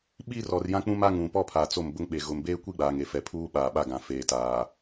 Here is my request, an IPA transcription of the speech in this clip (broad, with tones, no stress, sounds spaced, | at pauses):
ɓ i˦ r ɔ˨ r j ã˦ k͡p ũ˦ m a˦ ŋ ũ˨ p ɔ˦ pʰ a˨ t͡s o˦˨ m b ʊ˦ ŋ ɓ e˨ ɣ ʊ˨ m b eː˦ kʷ i˦ ɡ͡b aː˨ ŋ e˨ f ɛ˨ pʰ uː˦ ɓ aː˨ ɓ a˦˨ ɡ ã˨ f eː˨ t aː˨